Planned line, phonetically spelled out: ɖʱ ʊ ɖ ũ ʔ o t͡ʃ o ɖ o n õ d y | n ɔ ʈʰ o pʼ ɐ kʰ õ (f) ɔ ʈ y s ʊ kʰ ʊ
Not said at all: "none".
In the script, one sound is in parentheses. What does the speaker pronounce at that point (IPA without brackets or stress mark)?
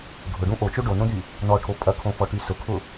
f